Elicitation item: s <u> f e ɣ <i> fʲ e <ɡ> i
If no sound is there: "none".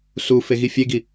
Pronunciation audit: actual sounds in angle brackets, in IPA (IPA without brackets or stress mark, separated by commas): u, i, ɡ